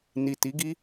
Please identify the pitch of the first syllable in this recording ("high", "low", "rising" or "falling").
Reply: low